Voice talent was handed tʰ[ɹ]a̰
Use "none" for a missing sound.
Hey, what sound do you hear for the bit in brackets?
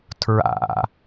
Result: ɹ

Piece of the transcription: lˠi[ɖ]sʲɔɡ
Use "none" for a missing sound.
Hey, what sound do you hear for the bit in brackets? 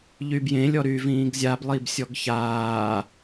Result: b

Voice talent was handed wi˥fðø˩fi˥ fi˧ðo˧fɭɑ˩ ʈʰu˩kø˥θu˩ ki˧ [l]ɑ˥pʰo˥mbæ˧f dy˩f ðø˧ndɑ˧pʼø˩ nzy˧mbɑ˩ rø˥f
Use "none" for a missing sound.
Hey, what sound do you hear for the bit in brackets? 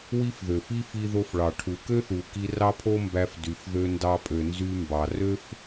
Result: r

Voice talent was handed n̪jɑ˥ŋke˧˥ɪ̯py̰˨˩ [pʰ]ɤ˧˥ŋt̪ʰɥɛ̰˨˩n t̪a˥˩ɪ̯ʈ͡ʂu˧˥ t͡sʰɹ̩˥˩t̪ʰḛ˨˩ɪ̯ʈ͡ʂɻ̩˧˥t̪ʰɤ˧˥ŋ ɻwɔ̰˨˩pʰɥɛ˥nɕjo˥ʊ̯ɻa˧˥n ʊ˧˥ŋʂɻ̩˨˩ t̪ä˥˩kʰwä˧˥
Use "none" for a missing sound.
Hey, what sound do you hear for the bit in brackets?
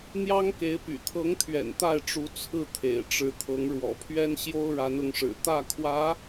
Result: t̪ʰ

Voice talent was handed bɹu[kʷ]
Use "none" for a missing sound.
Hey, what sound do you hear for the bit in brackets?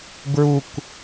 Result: kʷ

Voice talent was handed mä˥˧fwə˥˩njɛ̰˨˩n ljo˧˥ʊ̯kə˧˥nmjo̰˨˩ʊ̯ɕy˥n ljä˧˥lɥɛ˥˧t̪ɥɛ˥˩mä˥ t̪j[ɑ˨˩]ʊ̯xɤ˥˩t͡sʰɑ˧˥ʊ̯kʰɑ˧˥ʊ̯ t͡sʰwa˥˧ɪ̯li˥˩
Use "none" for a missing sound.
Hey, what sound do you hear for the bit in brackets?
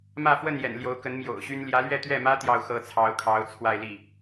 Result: ɑ˥˧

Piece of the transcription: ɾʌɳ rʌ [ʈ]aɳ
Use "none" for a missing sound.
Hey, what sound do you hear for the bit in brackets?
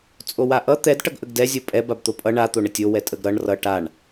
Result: ʈ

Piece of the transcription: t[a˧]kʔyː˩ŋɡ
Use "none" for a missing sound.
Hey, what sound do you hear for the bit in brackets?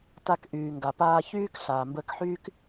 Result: a˧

